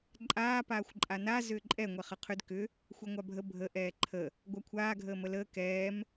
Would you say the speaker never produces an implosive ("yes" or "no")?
yes